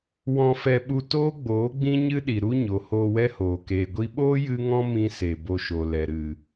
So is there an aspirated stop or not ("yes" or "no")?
no